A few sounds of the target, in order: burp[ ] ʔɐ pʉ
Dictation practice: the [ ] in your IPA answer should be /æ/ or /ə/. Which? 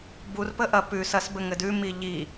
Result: ə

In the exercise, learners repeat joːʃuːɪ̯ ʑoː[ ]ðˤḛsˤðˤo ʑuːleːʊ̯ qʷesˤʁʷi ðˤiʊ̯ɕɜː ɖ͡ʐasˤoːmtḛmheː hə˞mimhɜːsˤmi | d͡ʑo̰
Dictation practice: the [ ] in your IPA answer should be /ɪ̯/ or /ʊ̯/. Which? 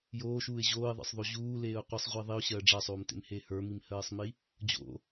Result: ɪ̯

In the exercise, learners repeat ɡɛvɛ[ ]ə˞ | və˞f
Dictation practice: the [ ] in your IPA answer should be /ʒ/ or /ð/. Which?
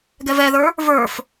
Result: ð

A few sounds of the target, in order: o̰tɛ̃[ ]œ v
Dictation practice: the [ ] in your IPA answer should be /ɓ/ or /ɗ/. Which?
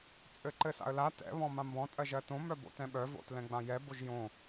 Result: ɓ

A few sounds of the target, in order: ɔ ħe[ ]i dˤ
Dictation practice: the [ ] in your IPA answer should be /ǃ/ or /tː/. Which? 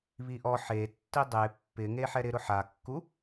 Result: tː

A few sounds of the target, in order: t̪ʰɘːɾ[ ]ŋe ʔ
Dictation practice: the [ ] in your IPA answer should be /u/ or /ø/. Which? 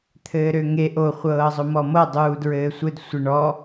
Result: ø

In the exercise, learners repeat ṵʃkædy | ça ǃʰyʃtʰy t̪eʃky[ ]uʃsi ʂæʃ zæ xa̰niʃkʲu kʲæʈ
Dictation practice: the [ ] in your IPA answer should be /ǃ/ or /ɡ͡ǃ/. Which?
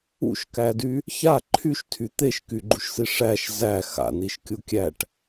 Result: ɡ͡ǃ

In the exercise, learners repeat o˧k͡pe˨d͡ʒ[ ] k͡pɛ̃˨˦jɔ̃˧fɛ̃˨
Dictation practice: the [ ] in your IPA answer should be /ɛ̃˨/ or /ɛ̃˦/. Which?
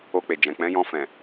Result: ɛ̃˨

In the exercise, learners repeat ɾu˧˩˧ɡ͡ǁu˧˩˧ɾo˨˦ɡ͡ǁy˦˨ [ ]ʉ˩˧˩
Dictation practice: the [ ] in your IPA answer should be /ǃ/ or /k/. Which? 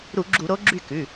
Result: k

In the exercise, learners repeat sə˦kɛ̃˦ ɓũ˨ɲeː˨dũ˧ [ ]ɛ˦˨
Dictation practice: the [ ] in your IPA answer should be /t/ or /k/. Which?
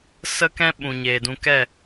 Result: k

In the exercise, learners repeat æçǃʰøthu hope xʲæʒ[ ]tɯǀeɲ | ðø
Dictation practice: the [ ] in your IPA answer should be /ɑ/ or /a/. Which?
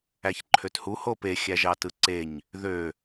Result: ɑ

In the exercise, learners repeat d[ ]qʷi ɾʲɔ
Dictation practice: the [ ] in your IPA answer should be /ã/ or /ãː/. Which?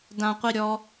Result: ã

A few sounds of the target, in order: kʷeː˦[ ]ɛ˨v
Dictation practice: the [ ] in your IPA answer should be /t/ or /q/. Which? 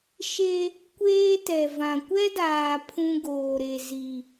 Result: t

